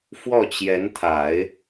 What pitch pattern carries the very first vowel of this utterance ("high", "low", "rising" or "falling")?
falling